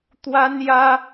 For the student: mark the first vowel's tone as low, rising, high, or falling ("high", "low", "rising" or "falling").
high